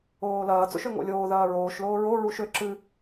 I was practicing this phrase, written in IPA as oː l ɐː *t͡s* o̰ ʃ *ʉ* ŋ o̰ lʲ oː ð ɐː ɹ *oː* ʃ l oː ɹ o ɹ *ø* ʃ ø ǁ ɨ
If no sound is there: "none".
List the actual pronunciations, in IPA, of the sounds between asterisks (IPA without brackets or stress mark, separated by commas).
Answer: t͡s, ø, oː, u